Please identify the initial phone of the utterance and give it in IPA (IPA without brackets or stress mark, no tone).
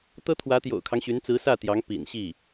t̪